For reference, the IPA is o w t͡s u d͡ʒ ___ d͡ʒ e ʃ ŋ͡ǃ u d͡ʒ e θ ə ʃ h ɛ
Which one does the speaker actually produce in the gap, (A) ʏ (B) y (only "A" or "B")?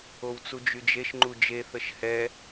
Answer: B